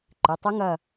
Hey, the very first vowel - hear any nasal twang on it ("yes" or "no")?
no